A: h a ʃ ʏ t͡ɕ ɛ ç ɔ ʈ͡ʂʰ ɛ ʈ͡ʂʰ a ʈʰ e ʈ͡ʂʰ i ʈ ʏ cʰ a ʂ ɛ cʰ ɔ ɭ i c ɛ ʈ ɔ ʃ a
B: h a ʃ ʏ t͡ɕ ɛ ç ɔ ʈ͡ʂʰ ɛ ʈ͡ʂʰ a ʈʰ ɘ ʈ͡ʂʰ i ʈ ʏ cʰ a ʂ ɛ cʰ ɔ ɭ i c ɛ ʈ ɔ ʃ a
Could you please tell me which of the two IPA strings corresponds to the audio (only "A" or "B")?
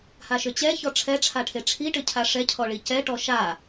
A